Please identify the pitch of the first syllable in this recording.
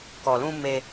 low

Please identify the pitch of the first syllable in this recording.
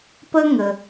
high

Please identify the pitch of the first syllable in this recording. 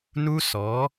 high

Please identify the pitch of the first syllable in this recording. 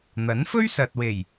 rising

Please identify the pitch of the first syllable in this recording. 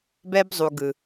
high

